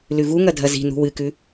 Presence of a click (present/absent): absent